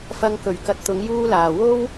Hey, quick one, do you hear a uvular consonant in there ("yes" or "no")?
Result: no